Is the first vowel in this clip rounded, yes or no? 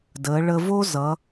no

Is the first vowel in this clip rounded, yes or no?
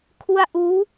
yes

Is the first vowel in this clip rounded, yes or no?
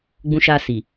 yes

